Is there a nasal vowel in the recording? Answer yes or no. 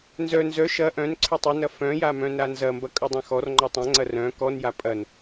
yes